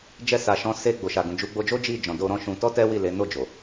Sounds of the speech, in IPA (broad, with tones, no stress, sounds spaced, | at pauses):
d͡ʒ ɛ˧ s a˨ ʃ ɔ̃˨˦ s e˧ ɡ͡b o˨ ʃ a˨ ɡ ũ˨ d͡ʒ u˨˦ ɡ͡b o˧ d͡ʒ o˦ d͡ʒ i˦˨ d͡ʒ ɔ̃˨ d o˧ ɾ ɔ̃˦ ʃ ũ˧ t ɔ˦ t ɛ˦ w i˦˨ l e˨˦ n o˦˨ d͡ʒ o˨